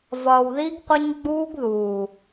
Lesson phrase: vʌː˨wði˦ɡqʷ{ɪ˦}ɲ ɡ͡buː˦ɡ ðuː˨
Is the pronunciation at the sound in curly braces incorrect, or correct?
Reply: incorrect